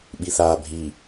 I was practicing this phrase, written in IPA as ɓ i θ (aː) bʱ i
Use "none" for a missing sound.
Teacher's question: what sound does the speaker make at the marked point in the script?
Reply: aː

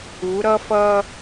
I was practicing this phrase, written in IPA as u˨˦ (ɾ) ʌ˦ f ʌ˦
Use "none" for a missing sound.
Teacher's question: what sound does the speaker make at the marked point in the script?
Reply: ɾ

